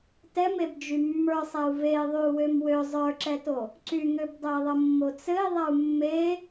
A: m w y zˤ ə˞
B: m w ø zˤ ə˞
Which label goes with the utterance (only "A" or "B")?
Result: B